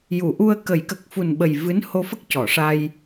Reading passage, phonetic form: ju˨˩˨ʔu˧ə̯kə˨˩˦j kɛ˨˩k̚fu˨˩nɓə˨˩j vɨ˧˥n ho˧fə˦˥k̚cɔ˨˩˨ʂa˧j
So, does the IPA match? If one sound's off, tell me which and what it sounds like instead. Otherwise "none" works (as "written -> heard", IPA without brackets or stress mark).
ɛ˨˩ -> ə˨˩